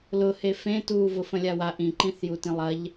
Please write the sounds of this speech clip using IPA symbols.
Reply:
l ʊ h e f ẽ t uː v ʊ f ə̃ lʲ a w a ʔ ĩ ǃ ĩ θ j u t ĩ lˠ ɐ ʎ

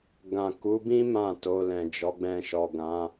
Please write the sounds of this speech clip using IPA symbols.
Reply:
ɡ ã˨ k u˨˦ b ĩ˦ m ã˦˨ t o˧ l ɛ̃˨ d͡ʒ ɔ˨˦ ɡ͡b ɛ̃˧ ʃ ɔ˨ ɡ ã˨˦

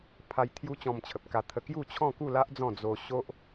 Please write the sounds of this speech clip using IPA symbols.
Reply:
pʰ a˧ j t̪ʰ j u˦ t͡ɕ ɔ̃˧ m t͡ɕʰ ə˨ p̚ k a˧ t̪ʰ ə˧ k j u˥˧ t͡ɕʰ ɔ̃˥˧ k u˥˧ l a˦ ʔ d͡z ɔ̃˥˧ d͡z o˧ ɕ o˦ ʔ

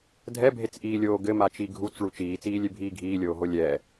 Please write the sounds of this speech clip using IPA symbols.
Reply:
dʱ ɛ bʱ e t͡s ʔ iː lʲ oː ɡ ɘ m a t͡ʃ i ɡʱ u t͡s ɭ u t͡ʃ iː t͡s iː lʲ e bʱ iː ɡʱ iː lʲ oː ɦ o lʲ ɛ

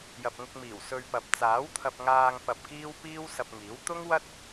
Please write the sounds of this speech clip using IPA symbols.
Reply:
j ɐ˨ p̚ ŋ ʊ˧ k̚ m iː˨˩ w s ɵ˧ ɥ p ɐ˨ p̚ t͡s aː˨˥ w t̪ʰ ɐ˧ p̚ ŋ aː˧ ŋ p ɐ˧ p̚ k iː˥ w p iː˥ w s ɐ˧ p̚ ŋ iː˨˥ w t̪ ʊ˥ ŋ w ɐ˥ t̚

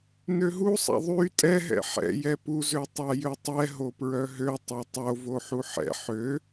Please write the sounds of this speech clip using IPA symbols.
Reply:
n ø ɦ u sˤ a̰ ðˤ y tʼ ɛ ɦ ɛ̰ ħ ɛ̰ j ɛ p u z ø tˤ a j ø tˤ ɛ ɦ o p ɹ œ ɦ ø tˤ a tˤ o v o ħ u ħ ɛ̰ ħ ø

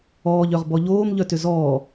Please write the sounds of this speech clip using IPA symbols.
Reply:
ɔː ʎ œ ʁ b ɔ ʎ oː m ʎ œ t ʏ z ɔː

